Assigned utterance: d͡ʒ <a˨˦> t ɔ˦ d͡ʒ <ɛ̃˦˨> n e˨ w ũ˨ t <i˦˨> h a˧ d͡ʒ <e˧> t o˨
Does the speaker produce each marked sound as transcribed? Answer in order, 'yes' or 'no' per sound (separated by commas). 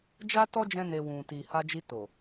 no, no, no, no